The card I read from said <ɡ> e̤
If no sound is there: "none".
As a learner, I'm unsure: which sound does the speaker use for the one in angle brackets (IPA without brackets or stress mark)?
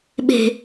ɓ